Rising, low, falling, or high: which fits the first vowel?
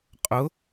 rising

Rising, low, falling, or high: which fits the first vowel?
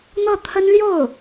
falling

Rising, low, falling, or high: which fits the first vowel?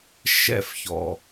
falling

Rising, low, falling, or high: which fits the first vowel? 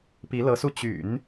rising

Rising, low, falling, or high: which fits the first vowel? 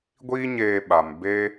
high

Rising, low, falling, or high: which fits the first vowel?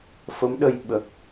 rising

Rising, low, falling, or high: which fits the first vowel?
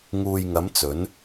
low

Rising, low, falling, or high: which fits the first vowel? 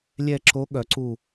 falling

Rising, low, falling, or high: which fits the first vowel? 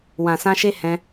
low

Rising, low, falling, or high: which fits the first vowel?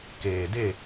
low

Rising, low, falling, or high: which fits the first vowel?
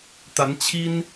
rising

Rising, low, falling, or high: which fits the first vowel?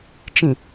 low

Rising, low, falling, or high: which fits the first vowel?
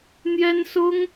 high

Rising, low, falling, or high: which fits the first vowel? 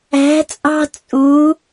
rising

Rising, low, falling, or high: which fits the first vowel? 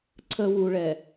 low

